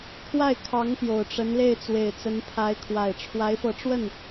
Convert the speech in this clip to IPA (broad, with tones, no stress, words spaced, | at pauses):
kʰwa˥˩ɪ̯kʰɑ˧˥ŋ pjo˨˩ʊ̯ʈ͡ʂə˧˥nle˥˩ɪ̯t͡swe˨˩ɪ̯ t͡sə˧˥npʰa˧˥ɪ̯kʰwa˨˩ɪ̯ ʈ͡ʂʰwa˧˥ɪ̯fɤ˧˥ʈ͡ʂwə˥˩n